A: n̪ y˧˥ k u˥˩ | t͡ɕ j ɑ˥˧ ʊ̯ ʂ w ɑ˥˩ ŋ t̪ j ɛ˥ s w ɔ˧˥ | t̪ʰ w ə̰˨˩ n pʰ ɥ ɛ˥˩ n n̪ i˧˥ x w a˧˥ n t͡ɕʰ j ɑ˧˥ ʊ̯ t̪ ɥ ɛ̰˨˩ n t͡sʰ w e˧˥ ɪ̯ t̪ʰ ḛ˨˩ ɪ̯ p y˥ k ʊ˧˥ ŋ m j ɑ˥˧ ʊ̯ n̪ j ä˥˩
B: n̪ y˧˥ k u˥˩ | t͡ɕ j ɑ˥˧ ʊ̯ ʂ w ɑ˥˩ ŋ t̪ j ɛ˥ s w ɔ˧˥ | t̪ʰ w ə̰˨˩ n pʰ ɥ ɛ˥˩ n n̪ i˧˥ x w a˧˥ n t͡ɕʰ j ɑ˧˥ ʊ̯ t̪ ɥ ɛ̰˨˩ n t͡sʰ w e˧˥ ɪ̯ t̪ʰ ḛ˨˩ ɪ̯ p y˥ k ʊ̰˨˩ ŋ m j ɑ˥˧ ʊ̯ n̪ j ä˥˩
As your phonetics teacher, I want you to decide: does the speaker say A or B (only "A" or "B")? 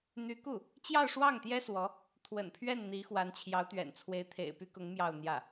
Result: A